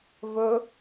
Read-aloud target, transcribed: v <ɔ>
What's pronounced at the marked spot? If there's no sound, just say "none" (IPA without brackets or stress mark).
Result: ɵ